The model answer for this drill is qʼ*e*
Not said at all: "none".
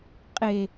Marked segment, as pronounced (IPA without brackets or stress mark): e